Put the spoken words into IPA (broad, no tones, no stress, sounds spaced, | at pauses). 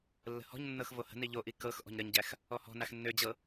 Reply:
lː ə̤ h ɔ̤ ɲ nː ɤ x v o h ə̤ n i ʎ o ʔ i k ɤ x ʔ ɔ̤ ɲ ɾ ə ɲ ɟ æ x | ɔ h ɔ̤ n a x nː ø d͡ʑ ɤ